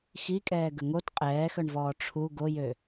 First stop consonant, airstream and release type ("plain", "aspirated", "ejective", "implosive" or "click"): ejective